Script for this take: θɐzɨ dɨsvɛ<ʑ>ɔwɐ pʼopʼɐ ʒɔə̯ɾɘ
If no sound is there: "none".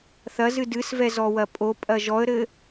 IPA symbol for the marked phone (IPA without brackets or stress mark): z